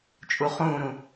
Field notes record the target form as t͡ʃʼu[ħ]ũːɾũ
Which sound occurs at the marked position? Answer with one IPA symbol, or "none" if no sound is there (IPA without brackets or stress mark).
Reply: χ